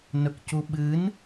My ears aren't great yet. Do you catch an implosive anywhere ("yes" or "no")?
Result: yes